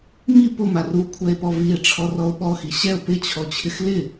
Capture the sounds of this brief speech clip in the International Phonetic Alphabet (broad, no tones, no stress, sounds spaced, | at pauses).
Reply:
m i p ʊ m a r u kʷʰ ɛ e̯ p ɔ v i e̯ ʈ͡ʂʰ ɔ r ɔ o̯ ɓ ɔ x i ɕ ɛ o̯ p ɪ t͡ɕʰ ɔ t͡ɕʰ ɪ x l ɪ